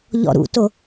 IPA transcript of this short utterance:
ʎ ɔ̰ ɾ ṵ t o

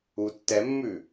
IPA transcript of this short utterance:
u tː ɛ mː ʉ

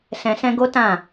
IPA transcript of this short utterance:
s ɛ̃˧ s ɛ̃˦ ɡ o˦ t ã˦˨

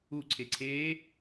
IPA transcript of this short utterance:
u ǀʰ e ǀʰ e

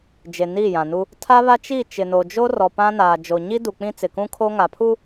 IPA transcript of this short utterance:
d͡ʒ e˨ n i˦˨ j ã˨ n u˦ | tʰ a˦ β a˦ t͡ʃ i˦˨ t͡ʃ ɪ˨ n o˨ d͡ʒ o˦ r ɔ˨ p ã˦ n aː˨ d͡ʒ o˨ ɲ i˦ d u˨ k͡p ĩ˦ t͡s ɪ˨ k ũ˦ kʰ oː˦ ŋ aː˨ pʰ u˦

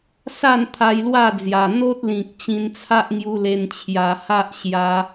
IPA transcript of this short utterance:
s a˥˧ n t̪ʰ a˧ j l w a˥˧ d͡z j a˨˩ n̪ o˦ t̚ l ĩ˨ k̚ t͡ɕ ĩ˧ n t͡sʰ a˦ ʔ ŋ j u˧ l e˧ n t͡ɕʰ j a˧ h a˦ ʔ ɕ j a˧

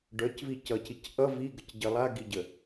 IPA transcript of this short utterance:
ɖ œ c v i c ʌ c i c ʔ ʌ v i ɡ ə c ɟ ə lˠ a ɡ i ɟ ə

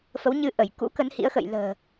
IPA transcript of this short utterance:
f ə˨˦ w ɲ ɨ˧ ʔ ə˧˩ j k ṵ˧˥ k ə˨˦ n h ḭ˧˥ ə̯ x ə̰˧˨ j l ə̤ː˨˩

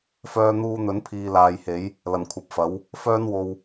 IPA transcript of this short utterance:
f œː˧ n̪ uː˧ n̪ ɵ˨˥ n pʰ iː˨ l aː˨ j h e˨˥ j | l ɐ˨˩ n kʷʰ ɐ˨ p̚ f ɐ˨˥ w | f œː˥ n w o˧ w

